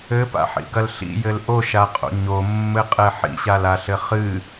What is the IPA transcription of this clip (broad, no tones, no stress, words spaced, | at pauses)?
ɘpa̰ħḭɡɐl ɬḭjɘl ʔoʃaqʼo̰ ɲomːɘqʼɛ ħḭɕalaɬɘ χɨ